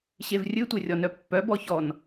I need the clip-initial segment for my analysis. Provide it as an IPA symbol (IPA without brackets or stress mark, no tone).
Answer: ɕ